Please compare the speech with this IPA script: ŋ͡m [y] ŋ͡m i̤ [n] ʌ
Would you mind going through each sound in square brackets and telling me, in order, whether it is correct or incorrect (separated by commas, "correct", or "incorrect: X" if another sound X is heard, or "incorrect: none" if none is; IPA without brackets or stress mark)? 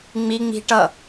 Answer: incorrect: i, incorrect: ʈ